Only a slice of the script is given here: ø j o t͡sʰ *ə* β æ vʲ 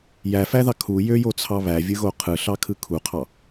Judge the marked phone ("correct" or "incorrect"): incorrect